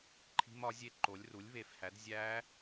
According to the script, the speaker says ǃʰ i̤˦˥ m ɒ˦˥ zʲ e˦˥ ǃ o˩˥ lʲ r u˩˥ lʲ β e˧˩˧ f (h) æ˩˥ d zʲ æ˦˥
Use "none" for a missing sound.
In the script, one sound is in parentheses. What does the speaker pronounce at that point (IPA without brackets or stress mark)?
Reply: h